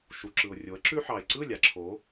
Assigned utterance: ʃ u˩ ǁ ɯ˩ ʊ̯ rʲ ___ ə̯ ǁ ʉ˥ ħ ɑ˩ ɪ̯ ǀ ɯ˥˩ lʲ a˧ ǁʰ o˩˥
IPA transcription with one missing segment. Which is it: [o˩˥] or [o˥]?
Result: o˩˥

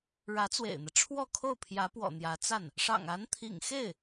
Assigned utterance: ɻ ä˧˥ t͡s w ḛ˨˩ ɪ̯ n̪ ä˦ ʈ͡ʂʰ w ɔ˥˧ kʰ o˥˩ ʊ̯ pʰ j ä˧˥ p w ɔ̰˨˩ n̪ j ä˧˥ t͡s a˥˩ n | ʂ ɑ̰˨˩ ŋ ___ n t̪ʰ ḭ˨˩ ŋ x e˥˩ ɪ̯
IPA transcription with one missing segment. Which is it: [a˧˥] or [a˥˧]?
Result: a˧˥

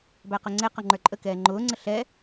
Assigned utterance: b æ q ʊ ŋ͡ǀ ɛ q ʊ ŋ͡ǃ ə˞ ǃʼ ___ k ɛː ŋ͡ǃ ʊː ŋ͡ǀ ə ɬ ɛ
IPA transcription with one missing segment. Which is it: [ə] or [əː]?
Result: ə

